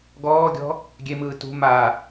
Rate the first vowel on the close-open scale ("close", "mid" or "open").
mid